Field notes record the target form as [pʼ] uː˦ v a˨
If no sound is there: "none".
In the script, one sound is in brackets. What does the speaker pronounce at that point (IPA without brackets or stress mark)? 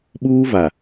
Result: ɓ